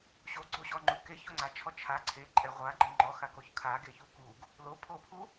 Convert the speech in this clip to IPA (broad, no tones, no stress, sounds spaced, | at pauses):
ɕ o ɡ͡ǀ o ɕ ɔ ŋ͡ǃ u k e ç o ŋ͡ǀ a t͡ʃʰ ɔ t͡ʃʰ a ǀʰ e ǃʼ ɛ ʁʷ a ɡ͡ǃ e ŋ͡ǃ ɔ x a k o ç kʰ a ɡ e ç u k u ɡ | l o pʰ o pʰ u